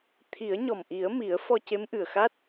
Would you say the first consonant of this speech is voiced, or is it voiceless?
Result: voiceless